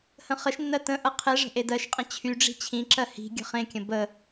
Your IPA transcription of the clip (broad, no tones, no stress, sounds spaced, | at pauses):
h ə̃ χ ə ʃ nː ɜ t ə̃ ʔ ɤ qʰ e ʐ ə̤ ʔ e d ɜ ʃ qʼ ə̃ t͡ɕʰ y ɖ͡ʐ i̤ t͡ɕʰ ĩ ǁ ɜ h i̤ ɡʲ ə̤ χ ẽ kʲ ə̃ b ə